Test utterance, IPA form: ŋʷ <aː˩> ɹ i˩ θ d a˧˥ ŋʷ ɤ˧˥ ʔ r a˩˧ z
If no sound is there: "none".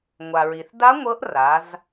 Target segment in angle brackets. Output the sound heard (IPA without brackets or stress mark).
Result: a˩